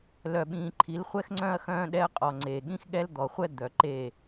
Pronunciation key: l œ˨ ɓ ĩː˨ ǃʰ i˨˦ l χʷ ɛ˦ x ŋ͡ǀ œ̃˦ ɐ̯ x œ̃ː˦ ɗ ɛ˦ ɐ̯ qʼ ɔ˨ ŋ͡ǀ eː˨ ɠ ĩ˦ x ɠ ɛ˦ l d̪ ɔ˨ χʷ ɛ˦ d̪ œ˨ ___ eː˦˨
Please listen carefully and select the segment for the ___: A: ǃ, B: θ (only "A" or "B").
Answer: A